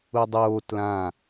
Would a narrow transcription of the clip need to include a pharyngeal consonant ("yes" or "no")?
no